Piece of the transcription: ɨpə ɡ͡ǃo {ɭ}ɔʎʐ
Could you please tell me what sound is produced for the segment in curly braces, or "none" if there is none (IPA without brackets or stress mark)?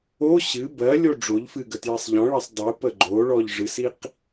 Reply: ɭ